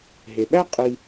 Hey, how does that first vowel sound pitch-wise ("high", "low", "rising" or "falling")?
low